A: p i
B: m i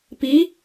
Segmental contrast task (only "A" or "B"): A